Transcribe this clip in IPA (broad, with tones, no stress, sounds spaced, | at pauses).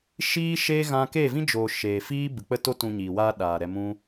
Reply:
ʃ iː˦ ʃ e˦ ɣ ã˦ k e˦˨ v ĩ˦ d͡ʒ oː˨ ʃ eː˨ f iː˦ b ɨ˨ k͡p ə˦˨ t o˦ t ũ˧ ɲ iː˨ w aː˦ ɗ aː˨ ɾ ɛ˧ m ũ˦